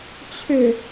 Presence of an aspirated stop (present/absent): present